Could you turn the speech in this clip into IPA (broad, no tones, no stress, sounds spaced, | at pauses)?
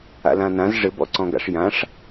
a̰ l ã n ã z ʐ ɘ b ɔ̰ ǀ ɔ̃ ɡ a̰ ʂ j ã ʂ